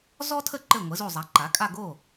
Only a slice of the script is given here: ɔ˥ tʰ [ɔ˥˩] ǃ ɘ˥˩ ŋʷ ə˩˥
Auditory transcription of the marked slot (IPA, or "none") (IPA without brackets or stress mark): ə˥˩